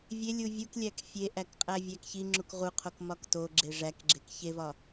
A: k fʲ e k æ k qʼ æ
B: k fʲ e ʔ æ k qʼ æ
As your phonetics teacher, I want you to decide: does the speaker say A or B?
B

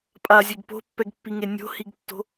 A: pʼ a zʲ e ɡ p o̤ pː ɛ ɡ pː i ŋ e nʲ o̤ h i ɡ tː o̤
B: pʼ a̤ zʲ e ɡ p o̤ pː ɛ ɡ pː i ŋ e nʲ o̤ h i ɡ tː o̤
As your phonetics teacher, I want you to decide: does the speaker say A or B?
A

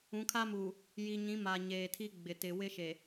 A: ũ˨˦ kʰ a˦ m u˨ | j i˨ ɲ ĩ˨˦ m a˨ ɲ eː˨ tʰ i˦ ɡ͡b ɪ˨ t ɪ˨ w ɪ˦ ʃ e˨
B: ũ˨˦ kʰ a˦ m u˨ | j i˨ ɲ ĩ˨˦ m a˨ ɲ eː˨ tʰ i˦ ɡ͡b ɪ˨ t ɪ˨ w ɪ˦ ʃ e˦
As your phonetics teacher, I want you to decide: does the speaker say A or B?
A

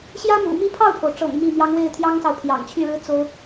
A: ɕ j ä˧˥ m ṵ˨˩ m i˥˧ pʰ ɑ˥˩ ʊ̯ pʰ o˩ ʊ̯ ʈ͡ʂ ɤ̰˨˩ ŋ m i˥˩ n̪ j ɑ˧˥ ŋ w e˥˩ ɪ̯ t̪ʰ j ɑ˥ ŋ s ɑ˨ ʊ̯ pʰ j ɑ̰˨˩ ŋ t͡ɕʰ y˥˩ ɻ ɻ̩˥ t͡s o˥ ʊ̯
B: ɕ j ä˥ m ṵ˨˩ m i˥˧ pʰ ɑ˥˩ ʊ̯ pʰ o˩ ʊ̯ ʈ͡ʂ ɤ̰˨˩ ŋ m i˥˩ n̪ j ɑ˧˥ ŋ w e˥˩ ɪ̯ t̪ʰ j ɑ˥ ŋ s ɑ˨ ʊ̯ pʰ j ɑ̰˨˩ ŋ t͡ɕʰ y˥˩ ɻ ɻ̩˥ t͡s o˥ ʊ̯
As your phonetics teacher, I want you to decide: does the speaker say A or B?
B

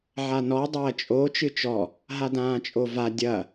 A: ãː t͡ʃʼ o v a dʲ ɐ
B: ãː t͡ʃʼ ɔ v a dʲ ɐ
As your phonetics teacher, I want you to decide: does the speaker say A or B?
A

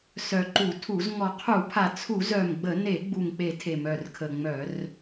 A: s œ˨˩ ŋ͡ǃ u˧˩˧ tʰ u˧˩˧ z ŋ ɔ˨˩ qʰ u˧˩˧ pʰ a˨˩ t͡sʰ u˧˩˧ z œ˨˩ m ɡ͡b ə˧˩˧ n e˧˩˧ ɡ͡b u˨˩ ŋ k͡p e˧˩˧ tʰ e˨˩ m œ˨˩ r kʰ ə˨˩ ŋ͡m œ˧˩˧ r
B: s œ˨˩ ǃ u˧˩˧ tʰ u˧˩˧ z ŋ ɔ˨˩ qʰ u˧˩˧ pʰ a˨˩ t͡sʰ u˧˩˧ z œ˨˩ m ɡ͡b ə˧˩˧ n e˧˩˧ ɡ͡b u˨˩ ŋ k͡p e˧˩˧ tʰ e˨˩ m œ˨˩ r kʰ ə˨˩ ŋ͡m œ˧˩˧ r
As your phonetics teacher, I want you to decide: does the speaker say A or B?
B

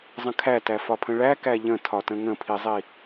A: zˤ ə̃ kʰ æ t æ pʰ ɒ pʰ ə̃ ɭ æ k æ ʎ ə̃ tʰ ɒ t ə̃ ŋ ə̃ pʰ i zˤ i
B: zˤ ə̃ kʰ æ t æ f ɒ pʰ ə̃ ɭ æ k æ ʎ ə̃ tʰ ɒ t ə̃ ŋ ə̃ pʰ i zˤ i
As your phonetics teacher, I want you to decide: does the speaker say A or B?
B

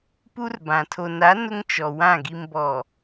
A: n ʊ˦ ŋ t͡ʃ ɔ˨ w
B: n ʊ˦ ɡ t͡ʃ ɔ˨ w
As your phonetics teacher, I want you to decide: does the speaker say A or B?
A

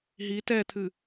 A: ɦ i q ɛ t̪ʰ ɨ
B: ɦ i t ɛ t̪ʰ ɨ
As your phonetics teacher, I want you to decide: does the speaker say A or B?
B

